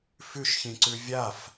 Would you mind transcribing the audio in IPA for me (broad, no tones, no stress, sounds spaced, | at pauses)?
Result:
f ʉ ʃ ç ĩ ǀ ʉ vʲ a f